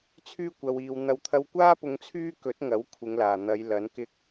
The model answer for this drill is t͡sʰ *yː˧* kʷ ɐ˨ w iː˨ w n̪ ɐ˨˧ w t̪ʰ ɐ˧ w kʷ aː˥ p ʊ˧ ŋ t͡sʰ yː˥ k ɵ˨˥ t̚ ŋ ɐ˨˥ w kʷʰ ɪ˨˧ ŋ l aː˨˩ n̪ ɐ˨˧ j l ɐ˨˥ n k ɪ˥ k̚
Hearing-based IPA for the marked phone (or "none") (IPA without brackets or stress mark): yː˥